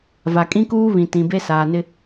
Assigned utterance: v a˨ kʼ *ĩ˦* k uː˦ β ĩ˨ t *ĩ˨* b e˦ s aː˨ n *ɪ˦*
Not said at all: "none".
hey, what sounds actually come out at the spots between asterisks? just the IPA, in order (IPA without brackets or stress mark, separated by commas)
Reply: ĩ˦, ĩ˨, ɪ˦